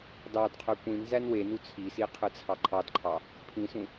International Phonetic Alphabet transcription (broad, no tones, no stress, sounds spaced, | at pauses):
d ɑ d qʰ ø kʷ ĩ n z æ n w e n u t͡sʰ i s i qʰ ɯ t͡sʰ ɑ ǃʰ ɑ d ǃʰ ɑ | pʰ ĩ s ũ